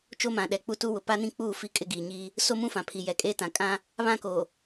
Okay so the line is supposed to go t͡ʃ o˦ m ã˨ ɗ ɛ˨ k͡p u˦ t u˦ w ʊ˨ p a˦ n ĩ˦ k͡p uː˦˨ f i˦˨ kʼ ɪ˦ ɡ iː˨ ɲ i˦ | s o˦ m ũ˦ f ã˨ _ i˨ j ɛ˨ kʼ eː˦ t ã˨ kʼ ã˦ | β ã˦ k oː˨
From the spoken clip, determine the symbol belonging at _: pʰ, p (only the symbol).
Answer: pʰ